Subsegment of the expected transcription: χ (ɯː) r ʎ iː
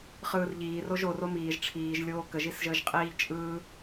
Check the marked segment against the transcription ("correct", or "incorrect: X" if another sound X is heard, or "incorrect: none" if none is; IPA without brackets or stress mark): correct